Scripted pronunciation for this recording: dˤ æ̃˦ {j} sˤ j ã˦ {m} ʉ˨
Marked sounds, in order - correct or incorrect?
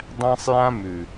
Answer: incorrect, correct

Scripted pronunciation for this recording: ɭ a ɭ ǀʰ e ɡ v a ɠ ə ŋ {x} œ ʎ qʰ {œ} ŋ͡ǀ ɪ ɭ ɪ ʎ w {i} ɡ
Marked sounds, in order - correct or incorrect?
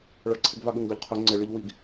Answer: incorrect, correct, correct

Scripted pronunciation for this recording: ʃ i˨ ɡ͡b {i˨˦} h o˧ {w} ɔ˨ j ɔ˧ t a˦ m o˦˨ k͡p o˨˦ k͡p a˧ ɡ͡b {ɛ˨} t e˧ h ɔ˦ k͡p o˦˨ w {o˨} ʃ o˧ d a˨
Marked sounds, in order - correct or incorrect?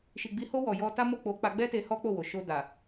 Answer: correct, correct, incorrect, correct

